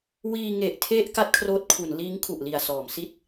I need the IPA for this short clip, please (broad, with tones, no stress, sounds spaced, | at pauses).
w iː˧ ŋ e˨˩ ʔ tʰ e˥˩ ʔ k a˥˩ t̚ kʰ r oː˦˥ t̚ kʰ u˩˦ n l iː˦˥ ŋ kʰ u˨˩ ʔ l i˨˩ a̯ s ɔː˩˦ m s i˥˩ t̚